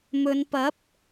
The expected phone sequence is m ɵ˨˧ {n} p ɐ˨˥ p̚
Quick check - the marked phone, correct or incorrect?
correct